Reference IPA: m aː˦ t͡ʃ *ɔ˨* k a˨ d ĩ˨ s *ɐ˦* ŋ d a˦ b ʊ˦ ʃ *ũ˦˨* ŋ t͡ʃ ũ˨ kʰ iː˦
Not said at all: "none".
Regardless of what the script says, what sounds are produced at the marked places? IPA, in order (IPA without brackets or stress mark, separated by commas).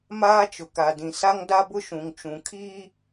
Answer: ʊ˨, a˦, ũ˨